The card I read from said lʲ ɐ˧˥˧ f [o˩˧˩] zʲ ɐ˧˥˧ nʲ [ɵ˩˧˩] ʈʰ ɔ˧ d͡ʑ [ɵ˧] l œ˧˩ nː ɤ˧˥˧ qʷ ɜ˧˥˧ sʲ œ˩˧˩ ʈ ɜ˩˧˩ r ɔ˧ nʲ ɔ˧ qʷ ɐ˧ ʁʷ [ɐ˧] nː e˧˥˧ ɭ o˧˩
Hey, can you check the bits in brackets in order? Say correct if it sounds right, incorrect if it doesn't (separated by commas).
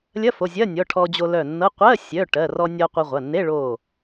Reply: correct, incorrect, incorrect, incorrect